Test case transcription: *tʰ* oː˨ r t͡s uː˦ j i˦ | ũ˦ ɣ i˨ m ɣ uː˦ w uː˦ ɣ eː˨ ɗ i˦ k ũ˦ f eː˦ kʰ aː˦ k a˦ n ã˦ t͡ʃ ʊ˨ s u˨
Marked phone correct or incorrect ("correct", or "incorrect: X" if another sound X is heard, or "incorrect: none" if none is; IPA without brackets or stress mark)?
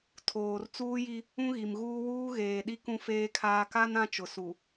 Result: correct